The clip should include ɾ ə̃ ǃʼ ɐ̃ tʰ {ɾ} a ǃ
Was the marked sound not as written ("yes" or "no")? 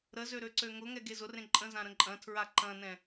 yes